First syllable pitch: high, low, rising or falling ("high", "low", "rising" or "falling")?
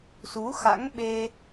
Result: rising